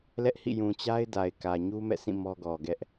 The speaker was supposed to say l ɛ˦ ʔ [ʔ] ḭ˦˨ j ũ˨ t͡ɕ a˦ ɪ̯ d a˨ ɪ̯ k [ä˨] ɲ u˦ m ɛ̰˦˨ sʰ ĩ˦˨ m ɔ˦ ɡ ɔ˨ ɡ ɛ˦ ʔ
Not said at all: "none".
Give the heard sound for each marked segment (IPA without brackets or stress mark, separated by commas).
h, ä˨